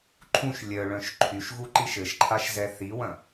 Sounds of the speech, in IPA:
ǃʰũʃ lʲœɭœ̃ʃ ǃʰyʃɣuǃiʃ ɘʃǃʰaʃzɛ θiwɐ̃

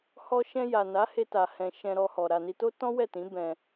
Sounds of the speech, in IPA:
hɔ˧ʃɛ̃˧ ja˨na˨˦he˧ ta˧hɛ̃˧ ʃɛ̃˧ɾɔ˧hɔ˨ ɾa˨ni˧to˦ tɔ̃˦wɛ˦˨tĩ˨˦ bɛ̃˧

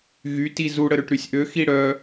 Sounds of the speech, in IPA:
ɣyti zuɽəɾøʈ ɾysʲʔø xiɽœ

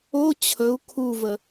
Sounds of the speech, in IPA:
o t͡ɕʰɵu̯ kʰuvə

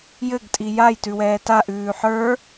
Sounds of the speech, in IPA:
jɘɡ tʼijajtʉ wɛːtaʔʉː ħə˞

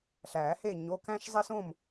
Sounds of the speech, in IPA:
ɬæː˨˩˦he˥˨ ɲo˩˧˩kæ̃˦ʃzˤe˦s õ˥˨m

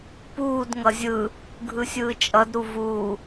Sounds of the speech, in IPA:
puːd ŋʌzʲɯ | ɡʱɯsʲɯːt͡ʃʼʌd ɾuvuː

